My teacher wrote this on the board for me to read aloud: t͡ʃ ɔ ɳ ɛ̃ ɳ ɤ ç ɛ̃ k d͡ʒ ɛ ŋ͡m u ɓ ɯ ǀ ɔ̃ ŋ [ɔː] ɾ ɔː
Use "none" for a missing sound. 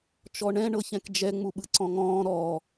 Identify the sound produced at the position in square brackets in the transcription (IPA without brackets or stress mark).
ɔ̃ː